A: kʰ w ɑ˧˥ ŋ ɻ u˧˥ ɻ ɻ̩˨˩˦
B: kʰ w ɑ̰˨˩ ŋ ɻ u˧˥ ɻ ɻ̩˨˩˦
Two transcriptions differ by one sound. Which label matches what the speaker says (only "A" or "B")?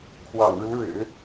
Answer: B